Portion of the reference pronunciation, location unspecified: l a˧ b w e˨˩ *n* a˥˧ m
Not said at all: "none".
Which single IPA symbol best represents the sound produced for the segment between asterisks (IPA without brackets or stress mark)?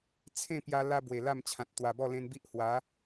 l